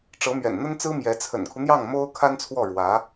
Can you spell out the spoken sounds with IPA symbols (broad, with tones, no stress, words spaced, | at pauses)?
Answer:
ʈ͡ʂɤ˧˥mɥɛ̰˨˩nn̪ə˥nt͡sɹ̩˥ mjɛ˧˥ t͡sʰə̰˨˩nkʰu˦n̪jɑ˥˩ŋ mo˥ʊ̯kʰa˥nt͡sʰwɔ˥˩ ɻwä˧˥